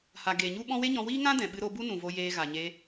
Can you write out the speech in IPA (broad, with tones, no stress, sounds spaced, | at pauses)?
h a˨ ɡ eː˨ ɲ u˦ ɓ ɔ̃˦ w e˦ ɲ ɔ̃˧ w iː˦ ŋ ã˦ d ɛ̃˨ ɓ ɨ˧ ɾ o˧ b u˦ n ũ˨ v o˧ j eː˧ ɣ a˨ ɲ e˧